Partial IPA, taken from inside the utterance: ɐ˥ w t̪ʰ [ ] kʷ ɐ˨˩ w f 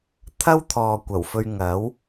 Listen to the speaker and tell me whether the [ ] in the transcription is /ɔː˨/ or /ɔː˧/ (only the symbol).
ɔː˨